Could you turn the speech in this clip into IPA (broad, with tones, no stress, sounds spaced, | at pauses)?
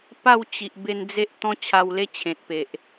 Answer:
p a˥˧ w t͡ɕ i˨ ʔ b e˧ n d͡z e˦ ʔ t̪ ɔ̃˦ t͡ɕʰ a˧ w l e˦ t͡ɕʰ ẽ˨ t̚ p e˨ ʔ